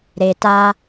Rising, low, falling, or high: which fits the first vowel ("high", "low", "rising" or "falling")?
low